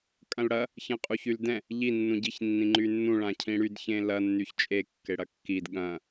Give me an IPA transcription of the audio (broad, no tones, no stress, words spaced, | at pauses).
kʼɐ̃lɽɐ | çɐ̃qʼuçyldɛ̃ | ʎi nːũɟiç nːĩŋ͡ǃynːũ ɭãcʰĩɽyd çẽlɐ nːyçt͡ʃʼe kːeɽɐkːid ɠɐ̃